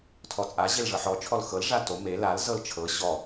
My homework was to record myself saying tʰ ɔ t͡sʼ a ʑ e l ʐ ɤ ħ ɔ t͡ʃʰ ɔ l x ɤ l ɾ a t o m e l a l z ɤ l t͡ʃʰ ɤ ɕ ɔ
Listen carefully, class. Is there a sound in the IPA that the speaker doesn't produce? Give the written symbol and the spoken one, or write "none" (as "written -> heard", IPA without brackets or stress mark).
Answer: ɾ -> ʐ